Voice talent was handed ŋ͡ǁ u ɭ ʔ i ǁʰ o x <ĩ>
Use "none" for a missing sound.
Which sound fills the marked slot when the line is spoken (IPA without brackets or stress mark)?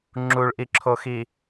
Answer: i